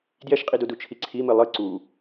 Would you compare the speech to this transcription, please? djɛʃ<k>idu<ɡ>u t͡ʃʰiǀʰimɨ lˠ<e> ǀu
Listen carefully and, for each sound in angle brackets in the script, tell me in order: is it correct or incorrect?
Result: incorrect, incorrect, incorrect

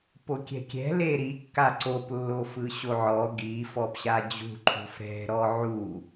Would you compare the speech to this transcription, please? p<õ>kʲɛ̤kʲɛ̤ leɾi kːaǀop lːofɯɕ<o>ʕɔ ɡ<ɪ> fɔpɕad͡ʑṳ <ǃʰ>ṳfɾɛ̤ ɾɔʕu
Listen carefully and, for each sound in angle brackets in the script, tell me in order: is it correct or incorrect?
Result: incorrect, correct, incorrect, correct

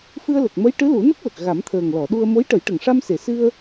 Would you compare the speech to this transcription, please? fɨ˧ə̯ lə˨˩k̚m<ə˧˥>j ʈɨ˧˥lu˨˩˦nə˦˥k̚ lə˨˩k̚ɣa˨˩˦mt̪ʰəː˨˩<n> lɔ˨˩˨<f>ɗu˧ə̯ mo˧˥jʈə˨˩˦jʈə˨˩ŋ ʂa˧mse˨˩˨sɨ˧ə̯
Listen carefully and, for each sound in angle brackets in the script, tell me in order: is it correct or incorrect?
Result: correct, incorrect, incorrect

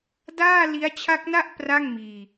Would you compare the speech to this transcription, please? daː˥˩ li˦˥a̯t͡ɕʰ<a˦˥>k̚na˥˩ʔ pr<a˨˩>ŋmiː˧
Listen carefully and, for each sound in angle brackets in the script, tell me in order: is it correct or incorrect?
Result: correct, incorrect

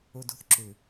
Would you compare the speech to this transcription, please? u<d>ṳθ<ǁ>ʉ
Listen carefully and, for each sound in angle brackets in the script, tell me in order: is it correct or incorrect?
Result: correct, correct

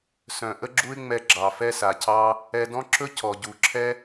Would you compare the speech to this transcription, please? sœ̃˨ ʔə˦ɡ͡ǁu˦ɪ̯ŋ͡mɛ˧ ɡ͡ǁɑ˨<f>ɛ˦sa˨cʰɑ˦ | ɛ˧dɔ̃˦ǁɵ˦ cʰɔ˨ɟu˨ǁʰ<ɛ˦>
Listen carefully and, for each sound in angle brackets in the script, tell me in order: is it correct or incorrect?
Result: correct, correct

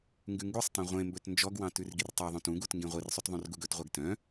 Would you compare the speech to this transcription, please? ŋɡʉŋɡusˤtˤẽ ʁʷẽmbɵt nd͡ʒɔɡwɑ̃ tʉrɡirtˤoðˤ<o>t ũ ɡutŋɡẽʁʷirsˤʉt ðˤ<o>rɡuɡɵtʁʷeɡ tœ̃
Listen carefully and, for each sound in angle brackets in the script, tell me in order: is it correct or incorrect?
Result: incorrect, incorrect

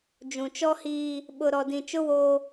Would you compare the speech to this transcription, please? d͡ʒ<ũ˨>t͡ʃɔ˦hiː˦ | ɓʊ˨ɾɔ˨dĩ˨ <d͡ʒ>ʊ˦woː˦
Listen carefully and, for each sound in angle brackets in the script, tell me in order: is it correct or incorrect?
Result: correct, incorrect

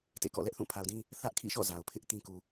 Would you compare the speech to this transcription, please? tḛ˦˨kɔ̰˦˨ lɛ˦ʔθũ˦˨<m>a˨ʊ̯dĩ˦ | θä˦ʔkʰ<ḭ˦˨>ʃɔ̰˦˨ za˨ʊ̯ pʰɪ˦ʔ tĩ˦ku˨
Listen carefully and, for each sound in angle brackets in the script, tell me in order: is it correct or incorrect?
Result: incorrect, correct

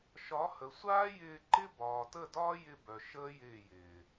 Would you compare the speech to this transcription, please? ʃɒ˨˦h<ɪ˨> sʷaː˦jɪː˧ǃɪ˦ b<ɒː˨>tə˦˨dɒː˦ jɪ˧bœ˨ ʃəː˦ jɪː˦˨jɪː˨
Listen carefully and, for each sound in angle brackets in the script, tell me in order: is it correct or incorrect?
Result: incorrect, correct

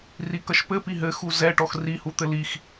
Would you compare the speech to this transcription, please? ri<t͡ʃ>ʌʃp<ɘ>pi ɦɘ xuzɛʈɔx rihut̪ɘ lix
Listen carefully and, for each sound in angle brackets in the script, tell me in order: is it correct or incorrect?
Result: incorrect, correct

